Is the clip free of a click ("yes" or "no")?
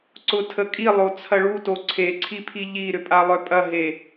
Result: no